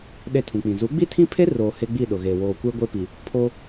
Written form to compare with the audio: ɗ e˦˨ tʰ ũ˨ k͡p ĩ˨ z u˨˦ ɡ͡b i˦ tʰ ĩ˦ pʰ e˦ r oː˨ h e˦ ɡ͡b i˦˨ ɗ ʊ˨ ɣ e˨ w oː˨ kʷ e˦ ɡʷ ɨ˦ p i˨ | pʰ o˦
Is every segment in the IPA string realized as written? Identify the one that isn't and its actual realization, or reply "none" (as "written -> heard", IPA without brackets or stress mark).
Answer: ɨ˦ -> e˦